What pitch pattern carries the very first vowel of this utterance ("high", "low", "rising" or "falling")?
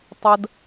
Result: high